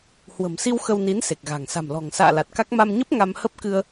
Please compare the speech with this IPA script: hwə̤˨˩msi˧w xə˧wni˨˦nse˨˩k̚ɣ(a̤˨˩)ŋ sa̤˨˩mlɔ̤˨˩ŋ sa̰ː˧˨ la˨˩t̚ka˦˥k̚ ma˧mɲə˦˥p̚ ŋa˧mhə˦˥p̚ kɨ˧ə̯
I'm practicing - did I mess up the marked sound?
no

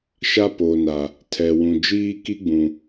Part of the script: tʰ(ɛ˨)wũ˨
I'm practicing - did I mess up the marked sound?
no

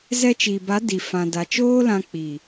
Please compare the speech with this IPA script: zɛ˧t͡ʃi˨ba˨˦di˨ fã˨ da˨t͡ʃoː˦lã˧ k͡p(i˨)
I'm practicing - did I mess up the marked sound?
no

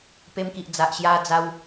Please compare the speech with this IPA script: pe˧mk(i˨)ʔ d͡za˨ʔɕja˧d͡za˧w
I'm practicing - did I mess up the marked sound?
no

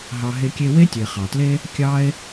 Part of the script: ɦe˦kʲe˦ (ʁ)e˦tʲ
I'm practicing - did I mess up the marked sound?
yes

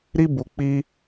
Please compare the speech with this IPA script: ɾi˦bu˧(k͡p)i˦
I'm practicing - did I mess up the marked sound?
no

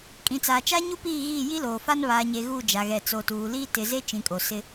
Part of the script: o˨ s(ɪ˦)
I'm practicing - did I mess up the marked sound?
no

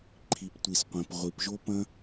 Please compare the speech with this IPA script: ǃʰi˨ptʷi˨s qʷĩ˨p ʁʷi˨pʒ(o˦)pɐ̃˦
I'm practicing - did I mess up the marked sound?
no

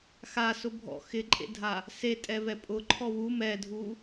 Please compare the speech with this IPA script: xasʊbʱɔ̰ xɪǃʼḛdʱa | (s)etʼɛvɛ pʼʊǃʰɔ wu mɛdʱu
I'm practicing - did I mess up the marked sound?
no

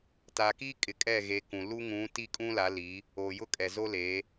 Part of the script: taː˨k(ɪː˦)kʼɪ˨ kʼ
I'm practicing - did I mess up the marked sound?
yes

